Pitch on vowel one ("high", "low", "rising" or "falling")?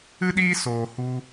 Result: high